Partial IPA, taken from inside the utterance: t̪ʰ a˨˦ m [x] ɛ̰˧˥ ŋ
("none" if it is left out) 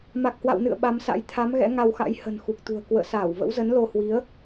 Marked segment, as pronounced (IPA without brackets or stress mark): ɣ